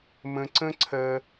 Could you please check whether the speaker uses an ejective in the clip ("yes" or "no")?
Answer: no